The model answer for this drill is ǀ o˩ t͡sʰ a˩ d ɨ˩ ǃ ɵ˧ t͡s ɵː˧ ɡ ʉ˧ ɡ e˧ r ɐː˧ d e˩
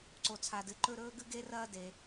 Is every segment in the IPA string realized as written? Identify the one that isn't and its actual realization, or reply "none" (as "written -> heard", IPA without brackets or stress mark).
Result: t͡s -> ɾ